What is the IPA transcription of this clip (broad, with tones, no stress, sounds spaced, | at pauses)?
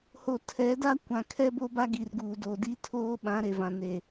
h o˨ tʰ ɛ˨˦ d a˦ kʷ ã˨ kʰ ɛ˦ b o˦ b a˦ ɡ i˨ r ɡ uː˨ d o˨ d i˦ tʰ oː˦ ɓ ã˨˦ ɾ e˨ v ã˨ n e˨